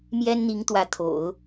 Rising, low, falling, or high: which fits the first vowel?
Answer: high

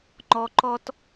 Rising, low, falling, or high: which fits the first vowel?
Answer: low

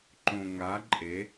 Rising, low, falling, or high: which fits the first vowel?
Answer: low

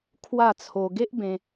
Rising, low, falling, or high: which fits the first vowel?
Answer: falling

